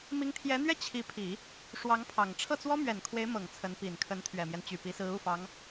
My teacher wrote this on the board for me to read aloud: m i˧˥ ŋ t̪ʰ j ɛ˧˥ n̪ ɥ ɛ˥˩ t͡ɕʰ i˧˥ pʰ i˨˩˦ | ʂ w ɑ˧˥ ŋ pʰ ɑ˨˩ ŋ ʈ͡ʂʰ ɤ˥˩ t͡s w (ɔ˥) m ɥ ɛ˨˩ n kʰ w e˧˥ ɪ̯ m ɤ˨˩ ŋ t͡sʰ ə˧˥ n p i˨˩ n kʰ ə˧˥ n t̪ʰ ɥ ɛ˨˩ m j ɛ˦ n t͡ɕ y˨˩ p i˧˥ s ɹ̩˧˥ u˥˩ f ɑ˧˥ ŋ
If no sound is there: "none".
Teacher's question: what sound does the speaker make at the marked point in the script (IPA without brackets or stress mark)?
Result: ɔ˥